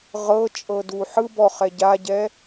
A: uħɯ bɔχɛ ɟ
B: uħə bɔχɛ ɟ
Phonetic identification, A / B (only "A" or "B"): A